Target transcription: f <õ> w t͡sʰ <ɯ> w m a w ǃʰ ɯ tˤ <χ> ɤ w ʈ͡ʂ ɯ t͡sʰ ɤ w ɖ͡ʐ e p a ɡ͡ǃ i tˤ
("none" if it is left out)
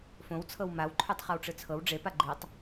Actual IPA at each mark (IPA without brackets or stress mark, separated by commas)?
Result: õ, ɤ, χ